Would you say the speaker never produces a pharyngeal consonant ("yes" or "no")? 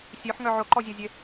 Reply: no